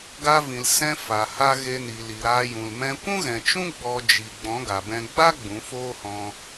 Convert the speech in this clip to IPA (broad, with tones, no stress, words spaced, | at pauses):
ɡa˧vĩ˨l sɛ̃˧fa˨ha˧ ɣe˧ni˨li˨ ɾaː˧jũ˨l mɛ̃˧ kʷũ˦ɣɛ̃˨t͡ʃũ˦ ɡ͡bɔ˧ d͡ʒi˨ ɡ͡bɔ̃˨˦ɡa˨bɛ̃˧ ɡ͡ba˦ ɡ͡bũ˨˦foː˦hɔ̃˧